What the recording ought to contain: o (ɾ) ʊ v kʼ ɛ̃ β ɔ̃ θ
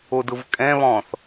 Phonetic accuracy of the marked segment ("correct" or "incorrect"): incorrect